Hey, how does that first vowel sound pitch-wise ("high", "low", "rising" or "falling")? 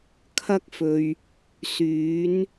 high